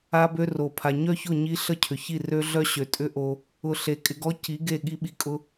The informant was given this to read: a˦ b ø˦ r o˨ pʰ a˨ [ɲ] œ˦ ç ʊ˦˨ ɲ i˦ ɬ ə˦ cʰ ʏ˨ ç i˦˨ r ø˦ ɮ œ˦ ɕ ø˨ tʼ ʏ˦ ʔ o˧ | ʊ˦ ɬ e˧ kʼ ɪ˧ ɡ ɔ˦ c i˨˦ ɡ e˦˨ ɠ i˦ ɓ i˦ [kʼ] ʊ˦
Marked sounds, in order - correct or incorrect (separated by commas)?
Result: correct, correct